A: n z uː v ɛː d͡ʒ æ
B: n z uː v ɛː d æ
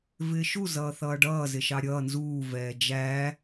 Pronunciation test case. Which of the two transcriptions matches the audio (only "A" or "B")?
A